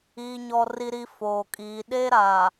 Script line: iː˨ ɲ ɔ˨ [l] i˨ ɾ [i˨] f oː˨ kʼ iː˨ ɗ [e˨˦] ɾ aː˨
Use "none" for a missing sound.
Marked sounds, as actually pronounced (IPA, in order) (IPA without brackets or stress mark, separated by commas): r, i˨, e˦